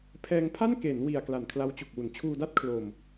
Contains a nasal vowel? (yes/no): no